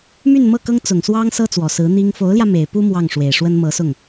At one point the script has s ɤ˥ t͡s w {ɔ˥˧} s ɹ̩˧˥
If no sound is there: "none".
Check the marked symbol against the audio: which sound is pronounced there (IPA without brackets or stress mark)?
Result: ɔ˨˩